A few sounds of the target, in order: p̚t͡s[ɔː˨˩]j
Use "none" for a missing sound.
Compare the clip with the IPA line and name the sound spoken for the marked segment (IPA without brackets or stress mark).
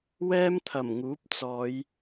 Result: ɔː˨˧